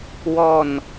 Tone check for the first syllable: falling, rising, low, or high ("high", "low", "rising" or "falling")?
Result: falling